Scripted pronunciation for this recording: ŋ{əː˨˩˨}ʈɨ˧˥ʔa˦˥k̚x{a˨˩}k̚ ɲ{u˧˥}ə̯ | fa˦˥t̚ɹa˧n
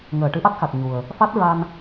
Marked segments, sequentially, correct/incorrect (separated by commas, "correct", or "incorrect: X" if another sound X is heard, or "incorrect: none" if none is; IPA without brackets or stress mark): correct, correct, incorrect: u˨˩